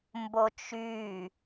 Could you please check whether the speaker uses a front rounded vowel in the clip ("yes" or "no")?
yes